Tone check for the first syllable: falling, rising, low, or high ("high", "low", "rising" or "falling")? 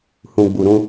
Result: low